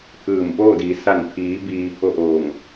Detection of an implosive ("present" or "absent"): absent